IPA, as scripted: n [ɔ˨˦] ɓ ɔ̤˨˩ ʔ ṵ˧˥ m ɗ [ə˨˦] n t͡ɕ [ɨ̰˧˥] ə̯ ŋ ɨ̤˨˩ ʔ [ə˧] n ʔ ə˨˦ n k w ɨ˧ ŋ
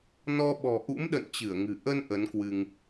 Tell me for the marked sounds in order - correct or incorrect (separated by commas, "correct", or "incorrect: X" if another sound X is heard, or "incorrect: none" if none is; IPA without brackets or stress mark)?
incorrect: ɔ˧, incorrect: ə̰˧˨, incorrect: ɨ˧˩, correct